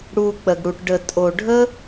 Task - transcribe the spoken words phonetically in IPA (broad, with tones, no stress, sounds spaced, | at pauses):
ɽ u˨ k͡p ə˨ ɡ ɽ u˨ ʈ ɖ ə˨ tʼ o˨ ɖʱ ə˦